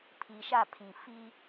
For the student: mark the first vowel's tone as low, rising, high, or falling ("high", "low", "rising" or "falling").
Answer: low